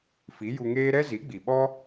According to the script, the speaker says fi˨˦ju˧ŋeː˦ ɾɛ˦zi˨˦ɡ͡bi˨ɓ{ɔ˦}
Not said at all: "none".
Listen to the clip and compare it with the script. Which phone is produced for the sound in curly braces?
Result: ɔ˦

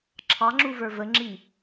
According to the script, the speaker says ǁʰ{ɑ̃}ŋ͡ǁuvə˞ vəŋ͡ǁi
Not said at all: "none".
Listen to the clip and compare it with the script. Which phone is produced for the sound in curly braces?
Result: ɑ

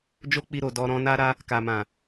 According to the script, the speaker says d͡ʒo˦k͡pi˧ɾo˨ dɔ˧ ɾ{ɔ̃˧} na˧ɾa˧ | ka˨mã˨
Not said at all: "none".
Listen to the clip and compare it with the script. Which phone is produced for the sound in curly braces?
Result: ɔ̃˧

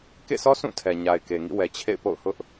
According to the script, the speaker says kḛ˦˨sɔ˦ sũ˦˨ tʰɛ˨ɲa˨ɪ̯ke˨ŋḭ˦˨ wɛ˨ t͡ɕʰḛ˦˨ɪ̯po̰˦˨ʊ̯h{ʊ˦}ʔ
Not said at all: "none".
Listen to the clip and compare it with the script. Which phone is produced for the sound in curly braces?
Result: ʊ˦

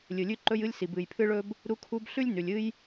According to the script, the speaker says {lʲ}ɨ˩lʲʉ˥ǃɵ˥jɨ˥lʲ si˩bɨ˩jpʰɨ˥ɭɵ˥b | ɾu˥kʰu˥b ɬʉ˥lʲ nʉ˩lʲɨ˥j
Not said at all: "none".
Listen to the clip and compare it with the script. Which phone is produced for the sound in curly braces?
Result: lʲ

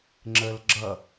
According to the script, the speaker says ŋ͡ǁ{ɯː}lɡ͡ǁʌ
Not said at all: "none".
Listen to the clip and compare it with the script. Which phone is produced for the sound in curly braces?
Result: əː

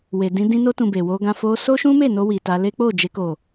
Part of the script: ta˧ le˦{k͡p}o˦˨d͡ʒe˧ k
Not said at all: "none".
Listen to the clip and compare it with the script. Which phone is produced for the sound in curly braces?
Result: k͡p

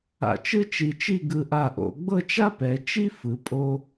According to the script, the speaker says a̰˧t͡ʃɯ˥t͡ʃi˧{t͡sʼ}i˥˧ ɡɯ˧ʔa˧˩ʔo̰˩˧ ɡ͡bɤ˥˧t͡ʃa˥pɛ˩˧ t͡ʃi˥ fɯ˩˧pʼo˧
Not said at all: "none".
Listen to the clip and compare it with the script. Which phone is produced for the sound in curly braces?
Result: t͡ʃ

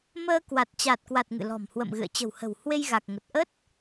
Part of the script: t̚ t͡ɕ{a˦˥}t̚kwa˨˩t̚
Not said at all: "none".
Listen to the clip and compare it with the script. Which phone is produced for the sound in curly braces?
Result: a˨˩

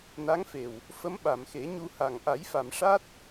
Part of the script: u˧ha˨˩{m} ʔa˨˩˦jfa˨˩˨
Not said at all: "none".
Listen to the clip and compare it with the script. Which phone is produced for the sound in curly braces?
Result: ŋ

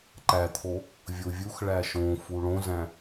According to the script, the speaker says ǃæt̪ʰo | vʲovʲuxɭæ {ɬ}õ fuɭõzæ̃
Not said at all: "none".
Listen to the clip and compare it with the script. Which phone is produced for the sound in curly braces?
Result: ʃ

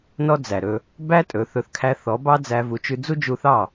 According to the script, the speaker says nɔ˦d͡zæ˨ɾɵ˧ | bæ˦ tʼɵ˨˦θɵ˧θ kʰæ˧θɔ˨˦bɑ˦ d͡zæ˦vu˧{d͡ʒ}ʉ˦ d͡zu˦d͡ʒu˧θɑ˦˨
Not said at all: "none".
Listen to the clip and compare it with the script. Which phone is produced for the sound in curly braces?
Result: t͡ʃ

